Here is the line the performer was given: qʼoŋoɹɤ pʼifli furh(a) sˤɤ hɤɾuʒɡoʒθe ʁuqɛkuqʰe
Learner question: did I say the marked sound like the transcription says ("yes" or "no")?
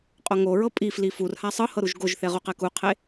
yes